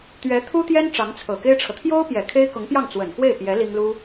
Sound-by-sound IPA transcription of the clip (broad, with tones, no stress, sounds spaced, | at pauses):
t̪ ɥ ɛ˧˥ t̪ʰ u˥ t̪ j ɛ˥ n ʈ͡ʂ ɑ˧˥ ŋ t͡sʰ ɤ˨˩ k e˥ ɪ̯ ʈ͡ʂʰ ɤ˨ t̪ʰ j o˥ ʊ̯ p j ɛ˨˩ kʰ e˥ ɪ̯ k ʊ˧˥ ŋ p j ɑ˥˩ ŋ t͡s w ə˨˩ n k w e˥˩ ɪ̯ p j ɛ˧˥ l i˥ ŋ l u˥